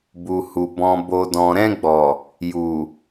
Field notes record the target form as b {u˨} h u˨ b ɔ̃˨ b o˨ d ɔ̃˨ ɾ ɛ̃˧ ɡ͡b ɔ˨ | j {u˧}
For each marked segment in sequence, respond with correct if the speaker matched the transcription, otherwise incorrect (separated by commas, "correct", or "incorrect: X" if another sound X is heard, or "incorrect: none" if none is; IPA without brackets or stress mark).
correct, incorrect: u˨